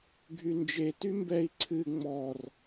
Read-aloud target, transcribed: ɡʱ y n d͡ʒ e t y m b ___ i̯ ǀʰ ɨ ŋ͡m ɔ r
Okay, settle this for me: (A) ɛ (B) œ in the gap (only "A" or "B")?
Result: A